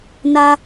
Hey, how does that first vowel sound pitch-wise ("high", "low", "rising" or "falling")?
high